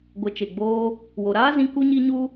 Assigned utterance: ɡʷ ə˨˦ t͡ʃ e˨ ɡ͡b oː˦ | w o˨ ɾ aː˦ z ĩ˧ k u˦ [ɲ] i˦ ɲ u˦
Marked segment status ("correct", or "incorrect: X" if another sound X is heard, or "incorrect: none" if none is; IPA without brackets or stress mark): correct